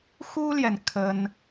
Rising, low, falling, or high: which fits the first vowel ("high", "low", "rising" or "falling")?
high